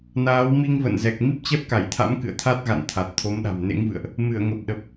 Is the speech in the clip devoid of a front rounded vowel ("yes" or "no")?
yes